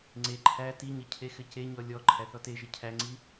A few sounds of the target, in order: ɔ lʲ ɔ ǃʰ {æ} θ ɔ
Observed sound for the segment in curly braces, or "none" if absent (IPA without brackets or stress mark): æ